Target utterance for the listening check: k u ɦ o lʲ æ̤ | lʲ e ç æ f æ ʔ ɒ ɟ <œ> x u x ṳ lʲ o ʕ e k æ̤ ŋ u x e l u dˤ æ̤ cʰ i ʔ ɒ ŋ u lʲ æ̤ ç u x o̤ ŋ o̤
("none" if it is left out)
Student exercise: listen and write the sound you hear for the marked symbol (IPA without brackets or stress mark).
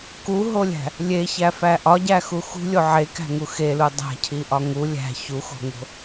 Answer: æ